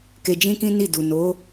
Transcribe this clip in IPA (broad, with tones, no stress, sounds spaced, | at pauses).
k e˧ d͡ʒ ĩ˦ k ĩ˦ n i˦˨ d u˨ n o˨˦